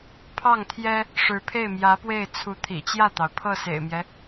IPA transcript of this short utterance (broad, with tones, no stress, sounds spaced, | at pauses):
pʰ ɑ˥˩ ŋ t̪ʰ j ɛ˥ | ʂ ɻ̩˧˥ pʰ e˥˩ ɪ̯ m j ä˧˥ p w e˥˩ ɪ̯ t͡sʰ u˧˥ t̪ʰ ḭ˨˩ t͡ɕ j ä˥˩ t̪ ɑ˩ ʊ̯ pʰ ɤ˥˩ s ḛ˨˩ ɪ̯ m j ɛ˦